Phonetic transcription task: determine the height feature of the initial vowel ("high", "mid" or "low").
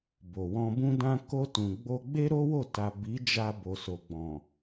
mid